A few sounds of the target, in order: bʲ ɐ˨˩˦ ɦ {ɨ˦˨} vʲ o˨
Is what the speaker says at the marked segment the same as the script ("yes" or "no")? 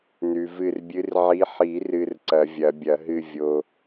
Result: yes